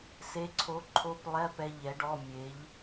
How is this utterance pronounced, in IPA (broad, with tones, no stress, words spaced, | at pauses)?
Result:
se˨˥ǀʰo˨˥ǃʰo˧˥˧plˠɛ˧˥˧ pɛ˧ ʎɛ˨˥ɖɔ˧˥˧ mʲe˨˥ʎ